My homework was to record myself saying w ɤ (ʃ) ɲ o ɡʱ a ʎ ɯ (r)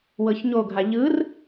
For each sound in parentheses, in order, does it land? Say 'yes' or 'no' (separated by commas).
no, yes